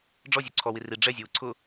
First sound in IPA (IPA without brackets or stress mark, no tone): ɖ͡ʐ